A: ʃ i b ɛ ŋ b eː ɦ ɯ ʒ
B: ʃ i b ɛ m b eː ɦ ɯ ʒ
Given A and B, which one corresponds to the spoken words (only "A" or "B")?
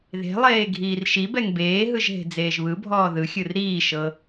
A